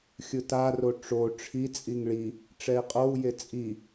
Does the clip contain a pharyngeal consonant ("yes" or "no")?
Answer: no